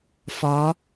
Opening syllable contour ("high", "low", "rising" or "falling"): rising